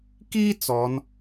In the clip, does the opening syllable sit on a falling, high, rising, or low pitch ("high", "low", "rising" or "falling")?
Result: high